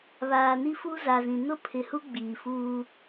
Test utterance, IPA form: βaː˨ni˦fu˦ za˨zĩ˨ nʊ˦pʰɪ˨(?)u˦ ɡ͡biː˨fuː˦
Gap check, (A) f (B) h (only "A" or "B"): B